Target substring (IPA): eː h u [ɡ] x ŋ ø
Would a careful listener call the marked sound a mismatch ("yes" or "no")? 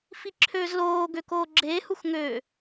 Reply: yes